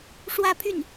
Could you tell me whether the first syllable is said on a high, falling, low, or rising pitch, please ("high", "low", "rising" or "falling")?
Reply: falling